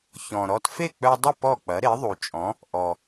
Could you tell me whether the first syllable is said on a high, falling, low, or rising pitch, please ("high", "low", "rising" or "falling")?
low